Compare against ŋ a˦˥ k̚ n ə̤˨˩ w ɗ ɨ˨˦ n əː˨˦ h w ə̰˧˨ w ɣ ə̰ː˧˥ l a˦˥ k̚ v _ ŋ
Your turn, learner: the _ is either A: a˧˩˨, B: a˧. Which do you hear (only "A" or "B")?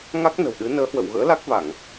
A